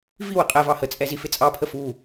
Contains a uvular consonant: yes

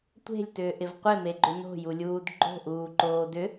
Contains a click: yes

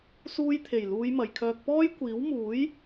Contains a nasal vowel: no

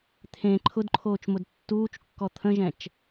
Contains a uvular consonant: no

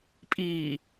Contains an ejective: yes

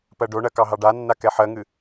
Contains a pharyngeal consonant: yes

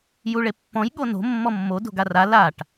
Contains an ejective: no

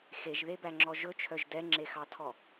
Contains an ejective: no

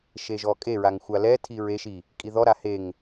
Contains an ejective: yes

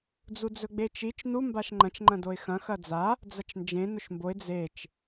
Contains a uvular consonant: no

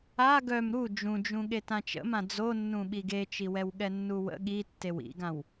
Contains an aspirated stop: no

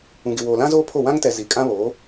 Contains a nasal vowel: yes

